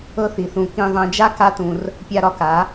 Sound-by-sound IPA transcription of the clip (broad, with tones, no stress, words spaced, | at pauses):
ɤ˧θi˨θũ˨ kĩ˨ðˤɛ̃˨d͡ʒa˧ ka˦tũ˧r | pʲa˧ɾɒ˧ka˨˦